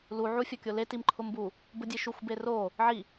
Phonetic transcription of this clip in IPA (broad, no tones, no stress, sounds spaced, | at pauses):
l u ʕ u fʲ ɔ kʲ o l e t i m ǃʰ ʊ m b u | b ʊ dʲ e ʃ u xʷ b e r o | ʕ i